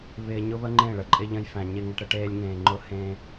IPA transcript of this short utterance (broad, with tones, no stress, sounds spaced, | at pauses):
β ɪː˧ ɲ ʊ˦ β ə˦ ŋ͡ǃ ẽ˦˨ ɭ ə˨ ǃʼ ɪ˦ ʎ ə̃˦ j f æ̃˧ ɲ ɪ˧ ŋ ə˧ ʈ ɾ ə˦ ʈ eː˦ lʲ ŋ ẽː˧ ŋ͡ǃ ʊ˦ h ẽ˦